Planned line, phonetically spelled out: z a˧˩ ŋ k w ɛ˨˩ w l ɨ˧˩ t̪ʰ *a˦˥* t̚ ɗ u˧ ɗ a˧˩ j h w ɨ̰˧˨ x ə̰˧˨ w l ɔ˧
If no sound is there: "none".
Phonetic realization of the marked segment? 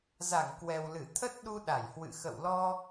ə˦˥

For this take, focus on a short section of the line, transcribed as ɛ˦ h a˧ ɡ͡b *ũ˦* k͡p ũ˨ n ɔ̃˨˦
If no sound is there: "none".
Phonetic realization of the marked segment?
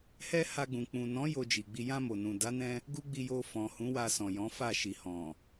ũ˨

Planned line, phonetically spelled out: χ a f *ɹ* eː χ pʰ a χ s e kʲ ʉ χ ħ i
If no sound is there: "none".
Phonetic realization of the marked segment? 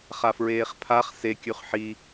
ɹ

